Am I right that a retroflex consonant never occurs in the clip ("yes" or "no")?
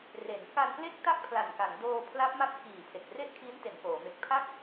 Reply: yes